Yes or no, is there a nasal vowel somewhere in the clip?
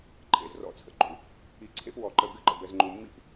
no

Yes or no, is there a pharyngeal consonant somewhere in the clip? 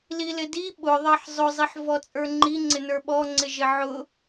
yes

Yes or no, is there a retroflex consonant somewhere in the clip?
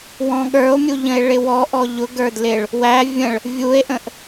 yes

